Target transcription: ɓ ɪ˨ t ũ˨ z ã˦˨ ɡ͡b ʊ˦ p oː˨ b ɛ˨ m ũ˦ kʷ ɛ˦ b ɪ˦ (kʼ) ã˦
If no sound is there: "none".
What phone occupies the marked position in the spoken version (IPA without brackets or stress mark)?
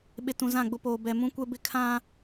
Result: kʰ